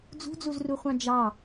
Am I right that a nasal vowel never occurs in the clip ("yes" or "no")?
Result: no